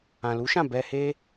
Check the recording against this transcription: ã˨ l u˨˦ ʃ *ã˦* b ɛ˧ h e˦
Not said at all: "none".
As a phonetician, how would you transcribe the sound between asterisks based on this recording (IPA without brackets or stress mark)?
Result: ã˦˨